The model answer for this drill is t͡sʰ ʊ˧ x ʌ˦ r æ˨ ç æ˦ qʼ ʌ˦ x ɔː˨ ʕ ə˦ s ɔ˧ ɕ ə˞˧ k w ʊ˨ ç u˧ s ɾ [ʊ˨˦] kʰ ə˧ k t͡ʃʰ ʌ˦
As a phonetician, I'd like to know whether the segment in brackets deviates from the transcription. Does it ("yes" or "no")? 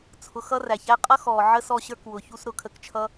no